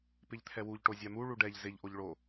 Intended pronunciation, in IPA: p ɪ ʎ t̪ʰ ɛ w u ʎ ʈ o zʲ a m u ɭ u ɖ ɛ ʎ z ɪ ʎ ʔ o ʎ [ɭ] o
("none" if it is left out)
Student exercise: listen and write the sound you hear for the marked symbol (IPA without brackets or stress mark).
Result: ɭ